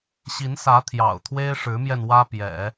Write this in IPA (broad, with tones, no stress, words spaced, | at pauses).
ɕi˧˥nsä˧˥ t̪ʰjɑ̰˨˩ʊ̯t̪ʰwe˥ɪ̯ʂɻ̩˧˥mjɛ˧n wä˥pjɛ̰˨˩˦